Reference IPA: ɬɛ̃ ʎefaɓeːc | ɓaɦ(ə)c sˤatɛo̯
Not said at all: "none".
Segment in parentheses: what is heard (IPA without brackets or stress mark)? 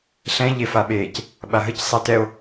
ə